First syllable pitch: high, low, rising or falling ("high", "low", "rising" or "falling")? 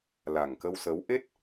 low